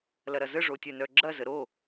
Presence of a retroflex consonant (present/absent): present